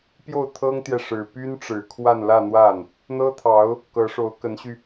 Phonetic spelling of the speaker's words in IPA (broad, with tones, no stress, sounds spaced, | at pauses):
p j o˥˩ ʊ̯ t̪ʰ ɤ˥ ŋ t̪ j ɛ˨ ʂ ɻ̩˨˩ p y˥ n ʈ͡ʂ ɻ̩˨˩ kʰ w a˥˧ n l ä˥˧ n̪ w a˥˩ n | n̪ ɤ˥ t̪ʰ ɑ˧˥ ʊ̯ | k ɤ˧˥ ʂ o˧˥ ʊ̯ k ə˧˥ n ɕ y˧